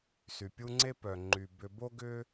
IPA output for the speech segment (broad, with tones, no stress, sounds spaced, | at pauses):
s y˩ pʲ u˦ ŋ͡ǀ e˥ p œ˩ ŋ͡ǃ y˩ b ʏ˨ b o˥ ɡ ʏ˥